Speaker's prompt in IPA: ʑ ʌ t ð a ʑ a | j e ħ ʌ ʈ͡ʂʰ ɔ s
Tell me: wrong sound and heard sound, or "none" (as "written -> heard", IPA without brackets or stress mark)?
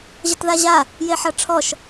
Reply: s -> ʃ